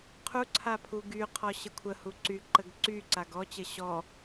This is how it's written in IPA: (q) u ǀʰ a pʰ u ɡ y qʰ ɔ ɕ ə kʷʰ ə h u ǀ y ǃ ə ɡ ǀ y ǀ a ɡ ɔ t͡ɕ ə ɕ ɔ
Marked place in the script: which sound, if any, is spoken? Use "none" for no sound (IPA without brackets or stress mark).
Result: qʰ